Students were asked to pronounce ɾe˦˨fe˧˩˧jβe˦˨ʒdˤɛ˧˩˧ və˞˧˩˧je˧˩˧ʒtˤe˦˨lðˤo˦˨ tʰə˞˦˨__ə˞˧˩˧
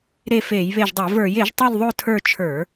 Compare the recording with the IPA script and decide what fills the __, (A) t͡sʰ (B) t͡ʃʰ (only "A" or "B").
B